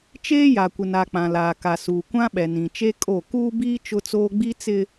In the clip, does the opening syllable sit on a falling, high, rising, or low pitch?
high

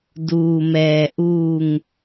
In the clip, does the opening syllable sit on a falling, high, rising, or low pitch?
low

